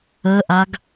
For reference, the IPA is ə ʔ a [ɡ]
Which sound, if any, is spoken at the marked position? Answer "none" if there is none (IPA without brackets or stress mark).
ɡ